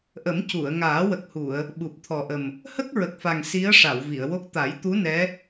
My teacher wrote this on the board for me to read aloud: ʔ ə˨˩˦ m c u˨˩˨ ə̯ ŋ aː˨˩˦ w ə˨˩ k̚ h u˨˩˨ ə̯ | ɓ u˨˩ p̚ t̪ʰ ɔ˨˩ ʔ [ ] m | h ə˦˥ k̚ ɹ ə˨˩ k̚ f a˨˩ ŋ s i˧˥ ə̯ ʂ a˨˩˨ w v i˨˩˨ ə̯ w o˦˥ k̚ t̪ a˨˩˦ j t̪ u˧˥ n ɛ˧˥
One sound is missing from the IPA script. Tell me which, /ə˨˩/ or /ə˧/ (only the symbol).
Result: ə˨˩